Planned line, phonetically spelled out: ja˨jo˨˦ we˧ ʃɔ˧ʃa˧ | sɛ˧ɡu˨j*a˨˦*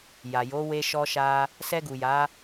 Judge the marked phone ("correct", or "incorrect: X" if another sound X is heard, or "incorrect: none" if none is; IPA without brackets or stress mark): correct